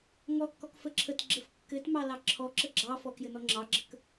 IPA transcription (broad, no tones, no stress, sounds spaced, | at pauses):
ŋ ɔ kː ɔ k f ə ǁʰ ə t ɡ͡ǁ ə f kː ɘ t m ɑ l ɑ ǁʰ ɔ ǁ ə ɡ͡ǁ ɑ f ɔ k j ɘ n ɔ ŋ͡ǁ ɑ ɡ͡ǁ ə k